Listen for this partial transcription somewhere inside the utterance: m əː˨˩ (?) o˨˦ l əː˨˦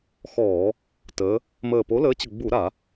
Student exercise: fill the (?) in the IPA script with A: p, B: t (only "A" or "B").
A